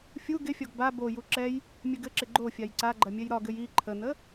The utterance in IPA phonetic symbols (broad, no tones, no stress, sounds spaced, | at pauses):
fʲ u ɡ ɪ fʲ ɒ ɡ b a b o j u ǁ ɛ j | mʲ ɘ ɡ ɘ ǁ ɪ ɡ͡ǃ o fʲ a j ǀ a ɡ͡ǃ ɐ mʲ ɛ j ɾ ɒ ɡ ɘ j i ǃʰ ə n ə